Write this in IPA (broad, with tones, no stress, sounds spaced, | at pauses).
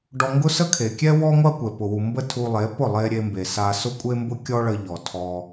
ɖ ɔ˧ ŋ ɡ ʊ˦ s ə˦ kʰ e˨ kʲ ɛ˦ w ɔ˦ ŋʷ a˦ kʷ ɛ˨ p ʊ˨ w u˨ m b ə˦ tʰ u˧ lˠ e˨˦ p ʊ˦˨ lˠ e˧ ɾʲ e˧ m b e˨ s a˧ s ʊ˦ kʷʼ e˦ m b ʊ˦ kʲ ɔ˦ ɭ ə˧ ʎ ɔ˨ tʰ ɔ˧